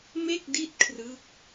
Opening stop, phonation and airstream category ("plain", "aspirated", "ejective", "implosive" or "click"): plain